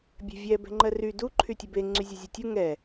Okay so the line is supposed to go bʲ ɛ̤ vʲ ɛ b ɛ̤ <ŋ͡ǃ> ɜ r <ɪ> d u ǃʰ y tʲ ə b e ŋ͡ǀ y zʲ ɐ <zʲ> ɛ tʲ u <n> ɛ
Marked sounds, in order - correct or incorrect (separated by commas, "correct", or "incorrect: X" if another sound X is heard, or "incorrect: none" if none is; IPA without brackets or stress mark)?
correct, incorrect: y, correct, incorrect: ŋ